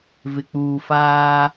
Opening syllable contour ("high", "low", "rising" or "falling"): low